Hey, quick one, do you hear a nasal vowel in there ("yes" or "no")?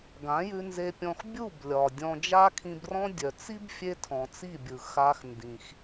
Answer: yes